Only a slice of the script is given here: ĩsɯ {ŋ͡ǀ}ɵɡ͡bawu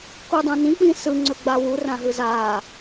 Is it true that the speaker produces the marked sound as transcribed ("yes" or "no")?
yes